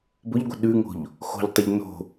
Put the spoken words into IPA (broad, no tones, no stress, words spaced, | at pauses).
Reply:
bʊʎɡʷə̤ ɗʉŋo̤ʎ | xo̤ʎtˤʏʎ no̤